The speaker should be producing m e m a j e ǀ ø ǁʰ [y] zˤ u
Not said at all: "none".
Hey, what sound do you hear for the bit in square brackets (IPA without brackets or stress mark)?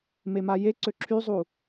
y